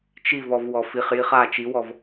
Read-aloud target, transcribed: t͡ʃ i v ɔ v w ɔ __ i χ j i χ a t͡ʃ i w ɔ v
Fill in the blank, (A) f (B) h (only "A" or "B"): A